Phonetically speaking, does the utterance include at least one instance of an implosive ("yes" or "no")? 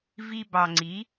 no